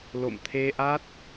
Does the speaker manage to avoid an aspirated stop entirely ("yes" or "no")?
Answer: no